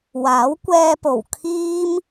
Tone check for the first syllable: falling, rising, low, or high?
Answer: rising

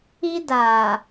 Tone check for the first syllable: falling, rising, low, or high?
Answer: high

